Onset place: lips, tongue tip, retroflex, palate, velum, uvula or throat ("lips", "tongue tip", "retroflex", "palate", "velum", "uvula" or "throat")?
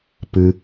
lips